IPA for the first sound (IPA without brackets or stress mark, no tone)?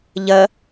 ʎ